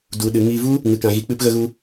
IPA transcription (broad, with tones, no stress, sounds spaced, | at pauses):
d u˧ ɗ ɨ˧ ŋ i˧ v u˦ | ŋ ɨ˧ k ã˧ ɣ i˧ k͡p ɨ˧ p ɣ ə˧ ɣ u˧